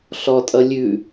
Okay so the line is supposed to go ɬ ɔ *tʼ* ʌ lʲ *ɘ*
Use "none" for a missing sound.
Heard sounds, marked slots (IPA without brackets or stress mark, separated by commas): tʼ, ʉ